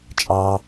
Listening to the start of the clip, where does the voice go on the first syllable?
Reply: high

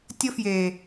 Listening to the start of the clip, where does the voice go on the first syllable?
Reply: high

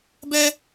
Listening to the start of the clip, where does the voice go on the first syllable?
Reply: high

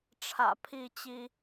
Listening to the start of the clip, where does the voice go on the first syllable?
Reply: low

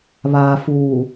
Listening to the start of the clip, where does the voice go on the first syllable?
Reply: low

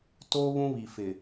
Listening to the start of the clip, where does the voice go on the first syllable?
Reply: high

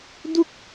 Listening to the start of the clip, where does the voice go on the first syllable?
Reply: falling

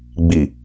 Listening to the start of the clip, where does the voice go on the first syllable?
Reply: low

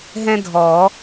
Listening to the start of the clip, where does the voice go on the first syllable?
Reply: high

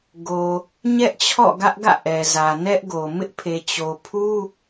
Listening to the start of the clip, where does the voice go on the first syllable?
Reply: low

